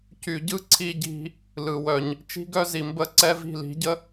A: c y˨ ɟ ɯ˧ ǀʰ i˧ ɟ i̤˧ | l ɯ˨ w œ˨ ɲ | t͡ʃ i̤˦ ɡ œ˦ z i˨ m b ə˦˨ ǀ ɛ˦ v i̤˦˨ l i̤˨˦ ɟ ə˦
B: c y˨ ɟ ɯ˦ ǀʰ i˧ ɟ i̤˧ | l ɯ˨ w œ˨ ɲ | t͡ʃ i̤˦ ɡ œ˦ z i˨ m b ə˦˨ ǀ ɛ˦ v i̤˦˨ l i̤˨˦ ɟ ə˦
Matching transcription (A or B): B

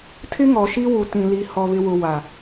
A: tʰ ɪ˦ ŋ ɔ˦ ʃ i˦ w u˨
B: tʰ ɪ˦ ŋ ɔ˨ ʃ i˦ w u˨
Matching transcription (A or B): B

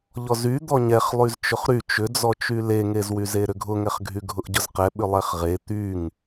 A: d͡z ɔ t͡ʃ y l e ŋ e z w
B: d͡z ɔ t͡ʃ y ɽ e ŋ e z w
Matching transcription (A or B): A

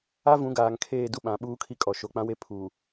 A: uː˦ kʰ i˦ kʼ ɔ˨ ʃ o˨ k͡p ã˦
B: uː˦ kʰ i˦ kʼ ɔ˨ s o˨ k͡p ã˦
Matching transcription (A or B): A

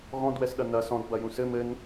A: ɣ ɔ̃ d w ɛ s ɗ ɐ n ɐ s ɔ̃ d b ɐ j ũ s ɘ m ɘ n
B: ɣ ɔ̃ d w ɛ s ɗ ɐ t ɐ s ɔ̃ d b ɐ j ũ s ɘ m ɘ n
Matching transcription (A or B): A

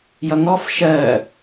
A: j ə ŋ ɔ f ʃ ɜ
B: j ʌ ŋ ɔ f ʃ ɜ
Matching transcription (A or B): B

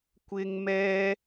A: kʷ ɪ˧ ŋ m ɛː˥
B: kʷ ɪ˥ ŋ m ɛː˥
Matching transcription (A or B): B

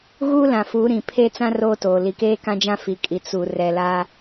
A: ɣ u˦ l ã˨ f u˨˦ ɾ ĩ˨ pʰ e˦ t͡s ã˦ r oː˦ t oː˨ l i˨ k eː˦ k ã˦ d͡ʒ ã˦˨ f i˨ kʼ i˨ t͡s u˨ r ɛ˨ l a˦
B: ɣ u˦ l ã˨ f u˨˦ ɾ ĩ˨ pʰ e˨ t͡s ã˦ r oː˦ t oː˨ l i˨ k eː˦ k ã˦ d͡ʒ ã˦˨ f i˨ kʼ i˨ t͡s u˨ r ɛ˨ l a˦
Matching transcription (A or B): A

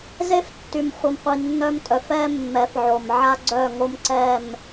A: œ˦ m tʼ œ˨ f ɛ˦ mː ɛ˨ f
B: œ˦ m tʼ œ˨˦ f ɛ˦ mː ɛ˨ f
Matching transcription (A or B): B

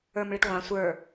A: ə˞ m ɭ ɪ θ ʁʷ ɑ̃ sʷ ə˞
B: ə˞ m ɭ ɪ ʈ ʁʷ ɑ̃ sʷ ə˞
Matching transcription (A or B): B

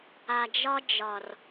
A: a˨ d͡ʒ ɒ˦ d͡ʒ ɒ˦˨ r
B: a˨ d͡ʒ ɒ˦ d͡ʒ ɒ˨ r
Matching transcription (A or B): B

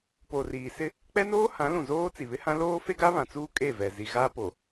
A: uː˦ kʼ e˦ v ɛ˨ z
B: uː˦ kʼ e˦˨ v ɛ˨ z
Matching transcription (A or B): B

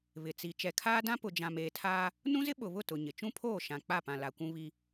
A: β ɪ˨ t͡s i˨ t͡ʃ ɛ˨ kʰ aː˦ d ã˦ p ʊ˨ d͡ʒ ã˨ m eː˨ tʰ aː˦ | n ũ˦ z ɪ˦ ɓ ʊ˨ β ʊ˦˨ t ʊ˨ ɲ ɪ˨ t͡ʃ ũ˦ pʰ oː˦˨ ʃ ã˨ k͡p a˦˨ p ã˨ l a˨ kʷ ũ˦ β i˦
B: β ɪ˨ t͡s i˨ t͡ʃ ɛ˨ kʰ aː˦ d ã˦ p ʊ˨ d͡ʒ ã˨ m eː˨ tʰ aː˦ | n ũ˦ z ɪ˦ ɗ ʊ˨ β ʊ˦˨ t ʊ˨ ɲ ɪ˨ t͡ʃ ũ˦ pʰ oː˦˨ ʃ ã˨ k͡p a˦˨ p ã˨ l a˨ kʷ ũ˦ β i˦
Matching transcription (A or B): A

